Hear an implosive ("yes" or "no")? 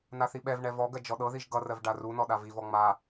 yes